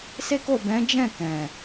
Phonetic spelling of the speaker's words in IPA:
se˦ko˦˨ bɛ̃˨˦d͡ʒɛ̃˦˨ kɛ̃˨

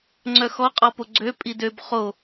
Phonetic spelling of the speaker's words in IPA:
ŋ͡ǀœxɔqʼɔpo ɡ͡ǀø pʼidøb χo

